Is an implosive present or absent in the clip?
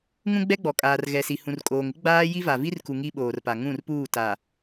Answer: present